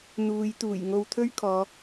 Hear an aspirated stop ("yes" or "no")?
yes